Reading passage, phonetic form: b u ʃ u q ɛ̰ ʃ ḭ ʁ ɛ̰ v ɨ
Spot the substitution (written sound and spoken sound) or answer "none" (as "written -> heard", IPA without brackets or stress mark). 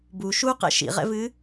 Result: none